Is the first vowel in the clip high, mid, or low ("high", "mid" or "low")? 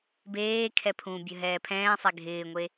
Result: mid